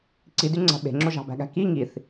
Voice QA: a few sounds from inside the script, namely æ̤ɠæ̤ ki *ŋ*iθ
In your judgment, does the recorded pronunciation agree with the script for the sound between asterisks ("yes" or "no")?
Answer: yes